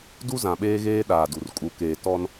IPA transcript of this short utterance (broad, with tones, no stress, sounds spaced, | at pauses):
d u˦ z ã˨ ɓ eː˦ ɣ eː˦ ɗ aː˨ d u˨ r kʼ u˨ k eː˨ t ɔ˦ n